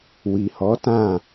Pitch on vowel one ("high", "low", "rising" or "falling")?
low